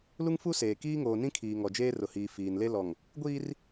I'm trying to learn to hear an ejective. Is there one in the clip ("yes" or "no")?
no